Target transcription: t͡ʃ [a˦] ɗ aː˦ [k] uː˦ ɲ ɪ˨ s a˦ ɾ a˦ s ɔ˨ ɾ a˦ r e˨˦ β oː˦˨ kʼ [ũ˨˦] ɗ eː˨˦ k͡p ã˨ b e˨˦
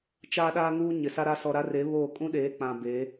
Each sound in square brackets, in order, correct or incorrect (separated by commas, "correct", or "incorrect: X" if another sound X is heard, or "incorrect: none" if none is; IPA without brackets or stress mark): incorrect: aː˦, incorrect: ŋ, incorrect: ũ˦